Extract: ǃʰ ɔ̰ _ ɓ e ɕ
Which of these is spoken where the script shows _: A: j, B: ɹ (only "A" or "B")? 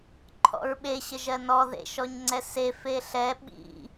B